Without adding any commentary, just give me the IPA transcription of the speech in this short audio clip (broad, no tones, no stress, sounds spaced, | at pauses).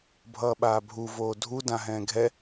bʱ ʌː ɓ aː bʱ u v oː dʱ u d ã ɦ ɛ̃ː ɡʱ ɛ